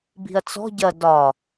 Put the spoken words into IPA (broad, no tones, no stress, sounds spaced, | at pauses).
b i̤ ɐ̯ t͡s ɔ̤ ɟ ɐ d ɒ